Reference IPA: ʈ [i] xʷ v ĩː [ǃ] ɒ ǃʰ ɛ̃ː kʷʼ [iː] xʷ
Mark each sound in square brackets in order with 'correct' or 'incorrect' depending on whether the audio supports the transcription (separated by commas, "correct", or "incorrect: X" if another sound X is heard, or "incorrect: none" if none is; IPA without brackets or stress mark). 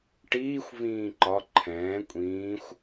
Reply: incorrect: iː, correct, incorrect: ĩː